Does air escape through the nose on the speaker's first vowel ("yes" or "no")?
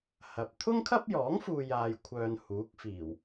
no